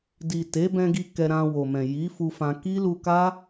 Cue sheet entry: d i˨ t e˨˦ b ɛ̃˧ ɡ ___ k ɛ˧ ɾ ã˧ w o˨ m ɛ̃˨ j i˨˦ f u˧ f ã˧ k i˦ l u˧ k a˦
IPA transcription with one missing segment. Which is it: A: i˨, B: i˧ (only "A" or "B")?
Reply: B